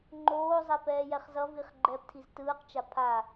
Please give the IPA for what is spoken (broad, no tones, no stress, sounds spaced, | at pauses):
ŋ͡ǃ oː zˤ ɛ p ɛː j ɛ χ z ʌ v i χ ɡ͡ǃ ɛː p tʰ i z t ɯː q t͡ʃ a pʰ a